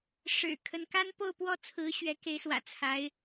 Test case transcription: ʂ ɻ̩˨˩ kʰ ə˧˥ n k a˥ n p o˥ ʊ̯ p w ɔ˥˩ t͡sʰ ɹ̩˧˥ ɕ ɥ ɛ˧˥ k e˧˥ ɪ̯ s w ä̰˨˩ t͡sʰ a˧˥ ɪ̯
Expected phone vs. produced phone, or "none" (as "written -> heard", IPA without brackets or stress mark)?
o˥ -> o˥˧